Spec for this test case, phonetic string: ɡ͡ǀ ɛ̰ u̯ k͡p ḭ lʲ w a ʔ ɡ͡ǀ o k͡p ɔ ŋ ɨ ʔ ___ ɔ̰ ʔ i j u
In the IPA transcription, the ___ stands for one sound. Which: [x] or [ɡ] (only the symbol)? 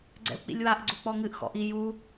x